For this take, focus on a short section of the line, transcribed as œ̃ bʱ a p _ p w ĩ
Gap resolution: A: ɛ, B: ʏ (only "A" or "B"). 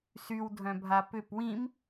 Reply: B